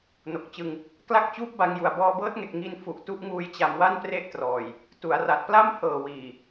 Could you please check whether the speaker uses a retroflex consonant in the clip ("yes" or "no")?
no